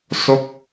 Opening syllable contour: falling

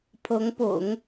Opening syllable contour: rising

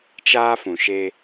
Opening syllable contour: high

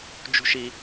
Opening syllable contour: high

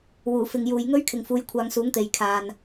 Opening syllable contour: low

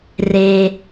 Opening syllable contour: low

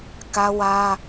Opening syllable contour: high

